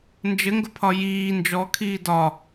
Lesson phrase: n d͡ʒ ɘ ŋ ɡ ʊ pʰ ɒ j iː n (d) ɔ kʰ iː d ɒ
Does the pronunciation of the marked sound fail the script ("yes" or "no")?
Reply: yes